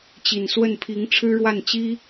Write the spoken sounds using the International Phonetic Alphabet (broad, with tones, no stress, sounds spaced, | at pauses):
t͡ɕ i˨˩ n s w ə˥˩ n pʰ i˧˥ ŋ ʈ͡ʂʰ ɻ̩˥ ɻ w a˥˩ n t͡ɕ i˥